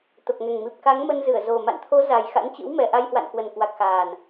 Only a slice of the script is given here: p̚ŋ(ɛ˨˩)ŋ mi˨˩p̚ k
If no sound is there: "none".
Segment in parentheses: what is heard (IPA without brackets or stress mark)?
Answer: ɛ˨˩